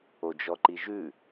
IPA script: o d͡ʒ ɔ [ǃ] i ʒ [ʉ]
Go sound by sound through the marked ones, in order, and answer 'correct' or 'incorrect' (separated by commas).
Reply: correct, correct